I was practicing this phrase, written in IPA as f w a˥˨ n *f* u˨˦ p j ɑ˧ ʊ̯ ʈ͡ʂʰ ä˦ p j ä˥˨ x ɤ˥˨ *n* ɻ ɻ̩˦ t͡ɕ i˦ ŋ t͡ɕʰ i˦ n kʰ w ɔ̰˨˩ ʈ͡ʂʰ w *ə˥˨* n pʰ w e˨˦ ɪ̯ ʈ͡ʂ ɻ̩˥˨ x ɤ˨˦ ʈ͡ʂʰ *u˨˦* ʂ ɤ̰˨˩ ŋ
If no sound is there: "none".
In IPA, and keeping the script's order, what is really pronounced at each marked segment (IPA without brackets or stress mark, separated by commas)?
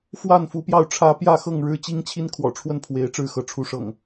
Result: f, ŋ, ə˥˨, u˨˦